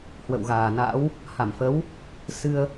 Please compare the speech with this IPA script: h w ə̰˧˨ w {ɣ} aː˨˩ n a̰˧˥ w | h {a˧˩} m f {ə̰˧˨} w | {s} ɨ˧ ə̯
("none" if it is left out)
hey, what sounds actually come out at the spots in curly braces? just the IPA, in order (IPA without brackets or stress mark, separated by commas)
ɣ, a˧˩, ə˨˦, s